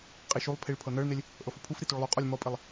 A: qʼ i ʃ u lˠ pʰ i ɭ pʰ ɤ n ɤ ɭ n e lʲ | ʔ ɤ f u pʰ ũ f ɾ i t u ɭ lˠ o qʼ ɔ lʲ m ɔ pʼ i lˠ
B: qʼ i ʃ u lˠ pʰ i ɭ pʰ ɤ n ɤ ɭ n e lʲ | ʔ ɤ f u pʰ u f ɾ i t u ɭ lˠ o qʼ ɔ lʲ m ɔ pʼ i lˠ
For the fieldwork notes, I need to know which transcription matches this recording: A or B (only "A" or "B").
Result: B